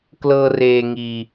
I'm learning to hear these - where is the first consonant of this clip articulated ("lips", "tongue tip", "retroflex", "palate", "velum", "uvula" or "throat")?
velum